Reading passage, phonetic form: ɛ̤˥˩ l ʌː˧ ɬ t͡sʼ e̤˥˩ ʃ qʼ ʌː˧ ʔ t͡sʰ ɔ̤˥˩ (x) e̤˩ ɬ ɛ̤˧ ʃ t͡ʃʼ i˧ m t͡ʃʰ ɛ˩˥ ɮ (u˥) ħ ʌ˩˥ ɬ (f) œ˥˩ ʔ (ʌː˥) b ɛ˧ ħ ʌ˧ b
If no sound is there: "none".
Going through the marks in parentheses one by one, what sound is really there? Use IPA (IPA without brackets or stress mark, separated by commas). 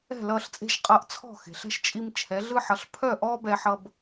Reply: x, ɯ˥, pʰ, ɔː˥